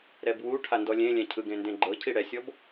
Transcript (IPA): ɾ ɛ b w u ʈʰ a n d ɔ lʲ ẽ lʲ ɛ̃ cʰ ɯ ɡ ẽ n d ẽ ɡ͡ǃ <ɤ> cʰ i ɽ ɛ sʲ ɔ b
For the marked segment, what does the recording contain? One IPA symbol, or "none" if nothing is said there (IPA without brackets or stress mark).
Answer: ɤ